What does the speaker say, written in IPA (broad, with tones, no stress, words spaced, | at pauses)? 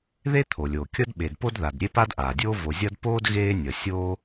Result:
ðe˥t̪ʰo˩lʲoː˩ kʲʌ˥d ɓe˩dpo˥d ða˩d ɾʲe˥pa˥dʔaː˩dʲoː˥ vo˩zʲʌː˥d poː˥d ɣeː˥nʲʌ˩ sʲoː˥